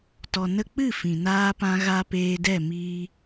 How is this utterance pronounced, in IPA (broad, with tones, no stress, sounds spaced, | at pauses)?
t ɔ˨ n ə˧ k͡p ɨ˦˨ f ĩ˨ n aː˦ p ã˦ ɣ a˦ p eː˧ d ɛ˦˨ m iː˧